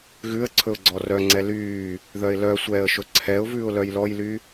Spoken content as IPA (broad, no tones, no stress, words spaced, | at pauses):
ɣʉə̯ǀʰɵʊ̯ ɡ͡ǀɔrœŋ͡ǀɛ lyː | ðœɪ̯lœsʷɛːə̯ʃɵ ǀʰɛʊ̯vʉːʊ̯ lœjlɔjly